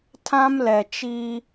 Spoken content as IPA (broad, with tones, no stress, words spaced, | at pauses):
tʰã˦mlɛ˨ t͡ʃiː˦